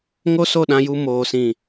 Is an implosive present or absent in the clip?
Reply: present